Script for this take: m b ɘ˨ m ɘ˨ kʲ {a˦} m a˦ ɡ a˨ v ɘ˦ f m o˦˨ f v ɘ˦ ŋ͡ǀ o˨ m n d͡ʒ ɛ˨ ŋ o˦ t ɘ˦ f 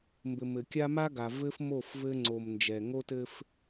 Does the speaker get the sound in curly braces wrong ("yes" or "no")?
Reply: no